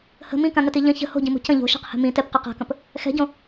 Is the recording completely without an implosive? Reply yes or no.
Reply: yes